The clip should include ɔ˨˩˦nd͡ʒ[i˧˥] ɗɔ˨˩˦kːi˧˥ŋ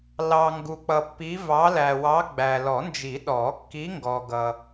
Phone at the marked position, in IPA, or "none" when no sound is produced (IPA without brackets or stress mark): i˨˩˦